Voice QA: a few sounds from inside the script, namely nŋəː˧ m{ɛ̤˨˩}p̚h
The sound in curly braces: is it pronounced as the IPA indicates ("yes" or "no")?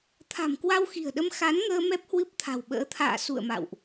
no